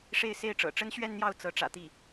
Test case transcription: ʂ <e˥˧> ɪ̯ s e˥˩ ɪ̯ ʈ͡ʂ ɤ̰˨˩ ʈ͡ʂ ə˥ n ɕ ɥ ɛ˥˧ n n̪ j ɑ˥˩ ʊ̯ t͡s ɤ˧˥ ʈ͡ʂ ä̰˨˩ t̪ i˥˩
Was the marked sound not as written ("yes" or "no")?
no